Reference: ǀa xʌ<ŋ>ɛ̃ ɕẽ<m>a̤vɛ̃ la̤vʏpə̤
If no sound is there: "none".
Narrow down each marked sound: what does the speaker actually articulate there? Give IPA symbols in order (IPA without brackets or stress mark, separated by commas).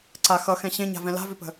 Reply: x, ɲ